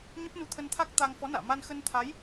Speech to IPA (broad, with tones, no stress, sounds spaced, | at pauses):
ɲ ə˦˥ p̚ n u˧ t̪ʰ ə˧ n t̪ʰ a˦˥ k̚ t̪ a˧ ŋ f ɔ˨˦ n a̰ː˧˨ m a˧ n x ə˧ n t̪ʰ a˨˦ j